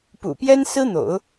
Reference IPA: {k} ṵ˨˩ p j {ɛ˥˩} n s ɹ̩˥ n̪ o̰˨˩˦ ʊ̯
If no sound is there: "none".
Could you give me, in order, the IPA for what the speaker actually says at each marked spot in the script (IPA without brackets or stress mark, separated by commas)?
p, ɛ˥